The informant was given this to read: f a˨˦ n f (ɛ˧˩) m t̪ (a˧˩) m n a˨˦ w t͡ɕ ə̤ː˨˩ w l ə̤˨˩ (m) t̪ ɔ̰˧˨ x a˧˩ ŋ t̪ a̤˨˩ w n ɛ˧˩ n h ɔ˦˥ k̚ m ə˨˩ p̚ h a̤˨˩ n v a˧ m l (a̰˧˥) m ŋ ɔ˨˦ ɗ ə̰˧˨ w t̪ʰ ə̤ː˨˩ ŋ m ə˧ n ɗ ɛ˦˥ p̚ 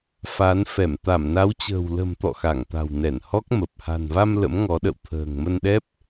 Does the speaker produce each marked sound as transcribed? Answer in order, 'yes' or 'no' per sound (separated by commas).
yes, yes, yes, no